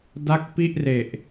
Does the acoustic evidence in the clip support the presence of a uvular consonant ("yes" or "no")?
no